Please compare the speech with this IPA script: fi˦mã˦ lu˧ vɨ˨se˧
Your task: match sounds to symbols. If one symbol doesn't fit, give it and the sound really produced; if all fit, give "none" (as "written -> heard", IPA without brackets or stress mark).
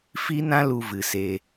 m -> n